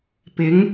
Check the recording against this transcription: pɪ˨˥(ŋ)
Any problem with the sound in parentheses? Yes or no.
no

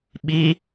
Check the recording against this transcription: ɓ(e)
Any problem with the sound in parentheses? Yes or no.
yes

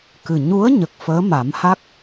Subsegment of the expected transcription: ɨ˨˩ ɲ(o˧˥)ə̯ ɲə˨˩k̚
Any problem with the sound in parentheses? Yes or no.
yes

